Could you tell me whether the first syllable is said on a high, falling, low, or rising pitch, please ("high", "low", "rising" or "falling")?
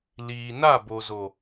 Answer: low